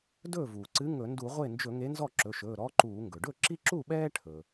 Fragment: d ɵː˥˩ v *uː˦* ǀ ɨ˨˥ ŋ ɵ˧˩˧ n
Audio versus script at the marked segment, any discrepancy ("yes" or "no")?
yes